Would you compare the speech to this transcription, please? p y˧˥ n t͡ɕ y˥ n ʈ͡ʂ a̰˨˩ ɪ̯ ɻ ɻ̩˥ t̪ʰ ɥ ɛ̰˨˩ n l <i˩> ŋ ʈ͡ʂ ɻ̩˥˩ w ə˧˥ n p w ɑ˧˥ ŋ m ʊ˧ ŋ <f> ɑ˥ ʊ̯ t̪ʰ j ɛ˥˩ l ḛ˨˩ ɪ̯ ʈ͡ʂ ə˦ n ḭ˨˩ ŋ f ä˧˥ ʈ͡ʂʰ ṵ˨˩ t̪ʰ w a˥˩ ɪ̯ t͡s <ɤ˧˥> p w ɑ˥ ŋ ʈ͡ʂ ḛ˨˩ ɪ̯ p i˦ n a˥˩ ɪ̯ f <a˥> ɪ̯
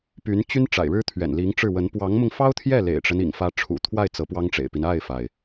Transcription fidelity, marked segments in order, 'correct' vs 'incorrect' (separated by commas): incorrect, correct, correct, incorrect